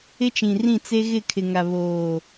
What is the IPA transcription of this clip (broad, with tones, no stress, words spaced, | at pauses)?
ɪ˦t͡ʃĩ˨rĩ˦˨ t͡se˦ɣɪ˦˨kʰɪ˨ŋa˨ βoː˨